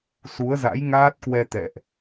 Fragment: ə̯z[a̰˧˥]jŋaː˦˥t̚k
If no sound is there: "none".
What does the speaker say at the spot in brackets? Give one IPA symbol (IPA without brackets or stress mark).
a̰˧˥